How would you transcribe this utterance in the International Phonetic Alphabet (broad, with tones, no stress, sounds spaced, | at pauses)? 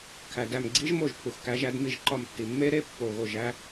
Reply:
kʰ æ˩ d æ˧˩ m ɡ͡ǀ i˦˥ ʒ m o˥˩ ʒ pʰ u˩ x k æ˨˦ ʒ æ˨˦ d m i˥˩ ʒ ǃ ɒ˧˩ m tː i˩ mː e˦˥ ɾ e˦˥ pː o˧˩ ɣ o˥˩ ʒ æ˦˥